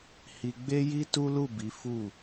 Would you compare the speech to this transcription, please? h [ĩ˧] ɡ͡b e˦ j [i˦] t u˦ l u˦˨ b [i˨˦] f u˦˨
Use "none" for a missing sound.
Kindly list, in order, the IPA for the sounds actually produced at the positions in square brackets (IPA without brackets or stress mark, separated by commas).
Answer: i˧, i˦, i˨˦